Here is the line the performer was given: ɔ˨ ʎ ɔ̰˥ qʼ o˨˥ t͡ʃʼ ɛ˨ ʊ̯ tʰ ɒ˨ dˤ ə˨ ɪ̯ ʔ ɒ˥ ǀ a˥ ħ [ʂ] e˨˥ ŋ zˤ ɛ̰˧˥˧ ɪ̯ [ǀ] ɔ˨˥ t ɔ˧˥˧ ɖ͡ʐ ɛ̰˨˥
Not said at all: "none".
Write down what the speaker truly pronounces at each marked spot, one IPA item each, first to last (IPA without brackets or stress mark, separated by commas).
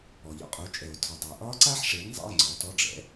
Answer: ʂ, ŋ͡ǀ